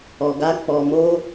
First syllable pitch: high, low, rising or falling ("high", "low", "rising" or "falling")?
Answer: low